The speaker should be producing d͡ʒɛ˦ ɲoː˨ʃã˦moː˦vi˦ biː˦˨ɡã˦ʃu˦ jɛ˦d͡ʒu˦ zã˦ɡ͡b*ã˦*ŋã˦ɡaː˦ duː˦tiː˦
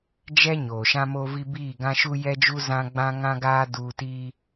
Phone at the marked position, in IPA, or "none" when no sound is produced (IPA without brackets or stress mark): ã˦